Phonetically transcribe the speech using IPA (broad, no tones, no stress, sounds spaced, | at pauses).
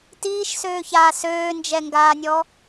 t iː ʃ s øː ç aː s øː n d͡ʒ ɛ ŋ ɡ aː nʲ ɔ